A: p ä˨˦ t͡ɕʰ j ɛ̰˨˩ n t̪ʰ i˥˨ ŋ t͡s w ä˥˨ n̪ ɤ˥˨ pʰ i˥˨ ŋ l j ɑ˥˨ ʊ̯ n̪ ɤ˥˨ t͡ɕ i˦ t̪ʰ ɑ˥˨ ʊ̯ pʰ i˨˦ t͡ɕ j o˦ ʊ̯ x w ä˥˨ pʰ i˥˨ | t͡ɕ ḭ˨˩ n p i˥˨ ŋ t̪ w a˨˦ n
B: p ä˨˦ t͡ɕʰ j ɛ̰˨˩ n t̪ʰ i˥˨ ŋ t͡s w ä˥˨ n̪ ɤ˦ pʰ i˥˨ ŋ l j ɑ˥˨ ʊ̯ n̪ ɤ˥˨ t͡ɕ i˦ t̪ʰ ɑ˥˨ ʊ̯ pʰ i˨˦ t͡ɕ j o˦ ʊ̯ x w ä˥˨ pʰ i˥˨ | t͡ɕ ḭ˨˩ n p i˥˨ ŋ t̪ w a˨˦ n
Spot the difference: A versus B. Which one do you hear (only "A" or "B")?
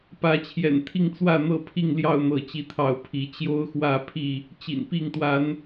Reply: A